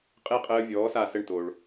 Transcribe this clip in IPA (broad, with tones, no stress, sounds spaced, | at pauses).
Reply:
qʼ e˥˩ qʼ əː˧ vʲ ɔː˩˥ s a˥˩ s ə˥˩ ɳ t o˩ ɭ